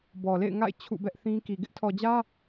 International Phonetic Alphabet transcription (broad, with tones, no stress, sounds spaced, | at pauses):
b ɔ˨ l ḛ˦˨ ɪ̯ ŋ a̰˦˨ ɪ̯ t͡ɕʰ ṵ˦˨ b ɛ˦ ʔ θ ĩ˦ k i˨ ɡ ɪ˦ ʔ tʰ ɔ˨ d͡ʑ ä˦